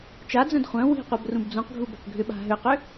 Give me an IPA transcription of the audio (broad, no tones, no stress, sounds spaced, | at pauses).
t͡ʃ a d͡z œ̃ d χʷ œ̃ w i̤ qʷ œ b r ũ b d͡z ũ q ɡʱ u b œ p ɡʱ ʏ ɓ a̤ ɦ ʏ q ʏ